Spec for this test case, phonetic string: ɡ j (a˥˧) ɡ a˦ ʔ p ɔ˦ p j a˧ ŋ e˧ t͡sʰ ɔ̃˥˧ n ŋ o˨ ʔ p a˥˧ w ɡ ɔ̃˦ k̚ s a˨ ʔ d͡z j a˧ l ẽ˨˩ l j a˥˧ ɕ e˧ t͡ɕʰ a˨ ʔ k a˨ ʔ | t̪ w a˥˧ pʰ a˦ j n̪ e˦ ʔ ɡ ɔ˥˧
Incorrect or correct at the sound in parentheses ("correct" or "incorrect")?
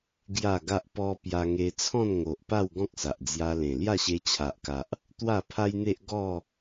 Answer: correct